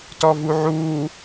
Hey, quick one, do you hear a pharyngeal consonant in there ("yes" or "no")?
yes